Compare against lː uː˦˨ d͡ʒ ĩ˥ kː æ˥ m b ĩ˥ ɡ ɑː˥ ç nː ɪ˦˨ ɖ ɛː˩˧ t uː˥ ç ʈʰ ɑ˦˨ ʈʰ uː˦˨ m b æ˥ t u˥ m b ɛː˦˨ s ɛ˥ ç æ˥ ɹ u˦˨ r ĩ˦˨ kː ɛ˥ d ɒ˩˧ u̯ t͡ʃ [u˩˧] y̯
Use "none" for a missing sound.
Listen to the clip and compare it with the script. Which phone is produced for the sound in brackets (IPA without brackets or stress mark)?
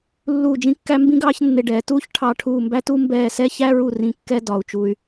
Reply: u˩˧